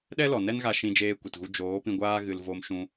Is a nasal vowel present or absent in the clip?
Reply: present